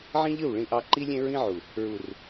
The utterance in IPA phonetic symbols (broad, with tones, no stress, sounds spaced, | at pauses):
ʕ ĩ˦ ʎ ɯ˦˨ w ɭ ĩ˨ ʔ ɑ˨ ǃ i˦ lʲ ẽ˦ ɹ ĩ˦ ʕ u˨ | ɹ u˨ r